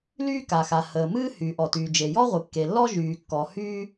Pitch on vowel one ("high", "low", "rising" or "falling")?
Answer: high